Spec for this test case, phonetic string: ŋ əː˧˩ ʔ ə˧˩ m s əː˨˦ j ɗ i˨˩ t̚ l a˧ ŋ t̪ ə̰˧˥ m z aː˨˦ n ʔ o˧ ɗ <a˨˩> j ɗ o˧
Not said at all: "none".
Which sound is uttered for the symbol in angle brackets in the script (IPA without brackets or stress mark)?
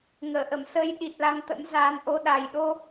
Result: a˨˩